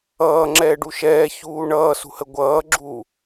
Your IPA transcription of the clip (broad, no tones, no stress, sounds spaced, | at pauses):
ʌː ŋ͡ǁ ɛː ɖ u ʃ ɛː ç uː ɳ ʌː s ṳ h ə ɡʷ ʌː ɡ͡ǁ u